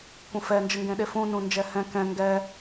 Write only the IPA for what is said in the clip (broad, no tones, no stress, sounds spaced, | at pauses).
kʷ ə̃ f ɛ n d͡ʒ ə ŋ ɡ ẽ ɗ e f ũ n ũ n d͡ʒ ɛ h ɛ̃ k ɛ̃ ŋ ɡ ɛ